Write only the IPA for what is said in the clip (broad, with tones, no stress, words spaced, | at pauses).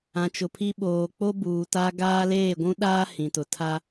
ã˨t͡ʃʊ˨pʰi˦ ɓoː˨k͡po˦ buː˨ta˦ ɡaː˦leː˦˨ɡʷũ˦ɗaː˦ hĩ˨tʊ˨tʰa˦